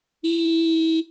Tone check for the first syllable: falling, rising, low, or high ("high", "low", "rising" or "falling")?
high